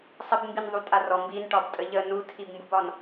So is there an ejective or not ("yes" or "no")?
yes